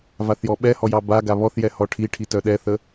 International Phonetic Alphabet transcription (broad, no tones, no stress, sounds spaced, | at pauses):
v a θ j ɔ ɓ ɛ h ɔ j ɑ b a ɡ a β ɔ θ j ɛ h ɔ ʈʰ i ʈʰ i t œ ɗ ɛ θ ə